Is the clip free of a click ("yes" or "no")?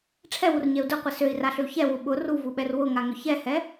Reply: yes